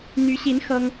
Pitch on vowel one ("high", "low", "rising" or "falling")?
rising